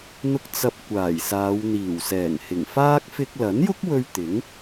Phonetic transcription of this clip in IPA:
n̪ ʊ˧ k̚ t͡s ɐ˧ p̚ kʷ aː˨˩ j s aː˨˧ w n̪ iː˨˩ w s ɛː˨˩ ŋ h ɪ˨˩ ŋ f aː˥ k̚ f ɪ˧ k̚ l ɐ˨˥ n j ʊ˥ k̚ w ɵ˧ ɥ t̪ ɪ˨˥ ŋ

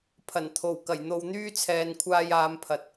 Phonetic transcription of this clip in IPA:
pʰ ɐ˨˩ n t̪ʰ o˨˩ w k ɐ˨˩ j n̪ o˨˧ w n̪ yː˥ t͡sʰ ɛː˨ n kʷʰ aː˧ j aː˨˧ m pʰ ɐ˨ t̚

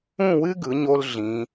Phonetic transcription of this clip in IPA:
ũ˥˧ w ɨ˥ ɡ ɯ˩˧ ɲ o˧ l ɮ ĩ˩˧

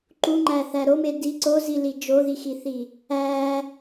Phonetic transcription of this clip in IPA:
ǃ u ŋ͡ǃ æ θ æ ɾ o m e d i ǀ o z i l i d͡ʒ o ð i x i θ i | æ

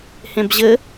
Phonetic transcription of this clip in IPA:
h ẽ b ʑ ɘ

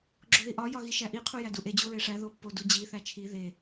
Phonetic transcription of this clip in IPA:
ɡ͡ǁ o ð i ʔ ɒ j ɒ ɣ i ʃ æ ʔ i qʰ u j æ d u ʔ e d͡ʑ u ɹ e ʂ æ ð o pː o d u d͡ʑ i θ æ t͡ʃʰ i ð e

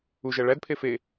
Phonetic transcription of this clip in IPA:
u ʒ æ ɭ æ d pʰ e f e

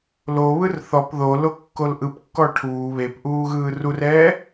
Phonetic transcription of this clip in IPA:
l o β ɯ r θ ɔ p ð o l o kː o l ʔ ɯ p kː ɔ ʈʰ uː β e p ʔ uː ɣ ɯː r u r ɛː

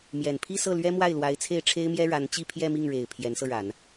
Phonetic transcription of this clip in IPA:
m j ɛ˨˩ n pʰ i˥˧ s ɤ˥˩ l ɥ ɛ˥ m w a˥˩ ɪ̯ l w a˧˥ ɪ̯ t͡sʰ e˥˩ ɪ̯ ʈ͡ʂʰ e˥ ɪ̯ m j ɛ˥ ɻ a˧˥ n t͡ɕ i˥˧ pʰ j ɛ˥˧ m i˥˩ ŋ ɻ e˨˩ ɪ̯ pʰ j ɛ˧˥ n s ɤ˧ ɻ a˨˩˦ n

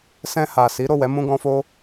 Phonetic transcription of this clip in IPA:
s ɛ̃˧ h a˨ s i˨˦ ɾ o˦˨ w ɛ˨˦ m ũ˧ ɡ ɔ̃˧ f o˦

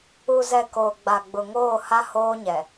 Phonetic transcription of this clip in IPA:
u˨ z ɛ˨ k oː˨ ɡ͡b a˨ ɡ͡b ʊ˨ ŋ oː˦˨ h a˦ h oː˦ ɲ ɛ˨

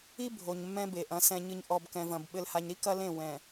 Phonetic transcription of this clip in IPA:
i˦ bʱ o˨ ɲ mː ɛ̃˦ b e˨ ʔ ɐ̃˨˦ s ɛ̃˨ ɲ ɨ˨ ɲ ʔ ɔ˨ b k ɛ̃˨ v ɐ̃˨ b ɓ ɘ˨ l h a˨ ɲ ɾ i˦ k ɐ˦ l ẽ˦˨ w ɛ̃˨

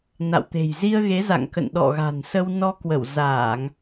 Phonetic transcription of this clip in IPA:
n a̰˧˨ w t̪ e̤˨˩ j z i˧ ə̯ ɣ e˨˦ z a̰˧˨ ŋ k ə̰˧˨ n ɗ ɔ̰˧˨ ɣ a̤˨˩ n s ə˧ w n ɔ˧ k w ə˧˩ w z aː˧˩˨ ŋ

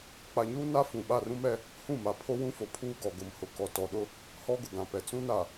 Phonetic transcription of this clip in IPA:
k͡p a˨ ɲ uː˦ n a˦ f ũ˨ ɓ a˦˨ r ũ˦ m ɛ˦ | h ũ˦˨ m a˨ pʰ o˦ w ũ˦ f o˨ pʰ uː˦ ɡ ɔ˨ ɡ ʊ˨ m h ʊ˨ k ɔ˨ t ɔ˨ ɗ ʊ˦ | h ɔ˦ ɡ ʊ˨ ɡ ã˨ p ɛ˨ t͡s ũ˦ n a˨

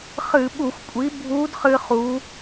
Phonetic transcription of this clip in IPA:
χ ɨ˧˩˧ ɓ u˧˩˧ xʷ kʷʼ i˩˥ bʱ u˧˥ d χ ɨ˧ χ u˩˧

